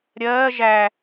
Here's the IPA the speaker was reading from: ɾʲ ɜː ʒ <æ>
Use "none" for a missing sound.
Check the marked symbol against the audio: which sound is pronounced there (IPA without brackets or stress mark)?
æ